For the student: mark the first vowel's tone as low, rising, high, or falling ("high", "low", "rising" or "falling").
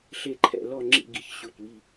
falling